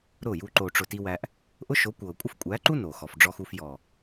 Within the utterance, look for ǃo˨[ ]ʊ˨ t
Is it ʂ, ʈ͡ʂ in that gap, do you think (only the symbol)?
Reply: ʈ͡ʂ